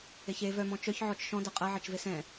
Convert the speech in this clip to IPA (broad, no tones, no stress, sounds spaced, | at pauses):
e ç e v œ m ɔ̃ t͡ʃ œ ç ʕ ɔ t͡ʃ ʃ ɔ̃ d ɐ qʼ ɐ ʕ ɐ t͡ʃ v e s ɛ̃